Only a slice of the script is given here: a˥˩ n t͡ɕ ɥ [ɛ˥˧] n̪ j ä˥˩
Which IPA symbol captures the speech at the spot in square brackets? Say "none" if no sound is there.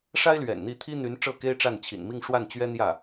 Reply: ɛ˥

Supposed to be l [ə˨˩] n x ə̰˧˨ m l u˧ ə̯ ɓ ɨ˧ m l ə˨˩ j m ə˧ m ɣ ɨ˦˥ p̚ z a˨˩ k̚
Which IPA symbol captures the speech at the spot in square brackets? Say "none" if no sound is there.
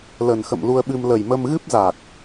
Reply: ə˨˩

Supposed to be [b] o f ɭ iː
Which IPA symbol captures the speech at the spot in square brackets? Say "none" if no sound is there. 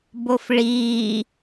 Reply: b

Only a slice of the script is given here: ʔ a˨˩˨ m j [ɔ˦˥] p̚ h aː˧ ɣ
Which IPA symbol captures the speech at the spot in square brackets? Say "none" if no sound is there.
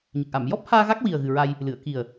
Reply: ɔ˦˥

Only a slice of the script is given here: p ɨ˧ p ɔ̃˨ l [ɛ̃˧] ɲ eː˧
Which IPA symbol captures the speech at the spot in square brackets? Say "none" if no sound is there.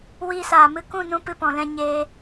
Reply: ɛ̃˧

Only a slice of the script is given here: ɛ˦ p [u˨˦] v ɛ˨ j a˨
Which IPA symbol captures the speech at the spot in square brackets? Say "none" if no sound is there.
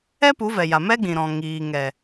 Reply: u˨˦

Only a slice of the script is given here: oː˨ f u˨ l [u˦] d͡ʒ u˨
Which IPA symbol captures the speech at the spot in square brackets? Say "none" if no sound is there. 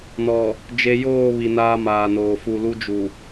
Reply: u˦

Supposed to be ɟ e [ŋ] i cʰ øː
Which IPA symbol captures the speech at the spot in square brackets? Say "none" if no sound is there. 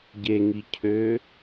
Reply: ŋ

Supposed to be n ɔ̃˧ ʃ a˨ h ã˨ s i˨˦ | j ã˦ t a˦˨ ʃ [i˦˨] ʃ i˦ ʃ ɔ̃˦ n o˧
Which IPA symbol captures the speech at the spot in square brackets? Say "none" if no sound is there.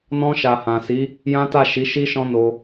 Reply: i˨˦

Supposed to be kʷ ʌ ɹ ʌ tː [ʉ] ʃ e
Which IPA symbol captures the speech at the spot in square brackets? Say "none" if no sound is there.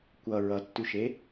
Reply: ʉ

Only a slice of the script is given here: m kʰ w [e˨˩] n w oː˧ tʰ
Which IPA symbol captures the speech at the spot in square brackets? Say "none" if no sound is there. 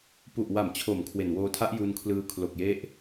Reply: e˨˩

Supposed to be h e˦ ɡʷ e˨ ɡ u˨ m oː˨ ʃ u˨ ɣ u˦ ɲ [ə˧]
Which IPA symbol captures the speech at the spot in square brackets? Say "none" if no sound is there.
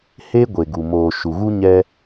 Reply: ɛ˧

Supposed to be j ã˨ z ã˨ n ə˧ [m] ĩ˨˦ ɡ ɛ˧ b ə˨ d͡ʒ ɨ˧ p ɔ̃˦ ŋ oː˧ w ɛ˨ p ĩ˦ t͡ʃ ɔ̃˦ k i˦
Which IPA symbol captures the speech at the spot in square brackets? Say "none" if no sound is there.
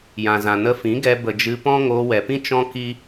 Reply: f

